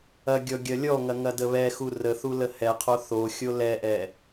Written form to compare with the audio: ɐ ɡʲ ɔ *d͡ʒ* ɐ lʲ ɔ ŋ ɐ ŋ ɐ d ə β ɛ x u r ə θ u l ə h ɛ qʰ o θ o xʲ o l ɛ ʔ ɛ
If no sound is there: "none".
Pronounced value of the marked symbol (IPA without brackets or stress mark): ɡʲ